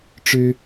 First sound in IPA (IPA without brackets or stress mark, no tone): ʈ͡ʂ